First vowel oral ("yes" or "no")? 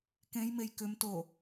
no